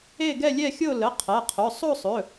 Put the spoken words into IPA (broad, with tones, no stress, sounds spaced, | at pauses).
e˥˧ ɡ ɛ˥˧ lʲ ɛ˥˧ xʲ o˥˧ l ə˩˧˩ qʰ ɛ˩˧˩ qʰ ɵ˩˧˩ sˤ o˥˧ sˤ ɵ˩˧˩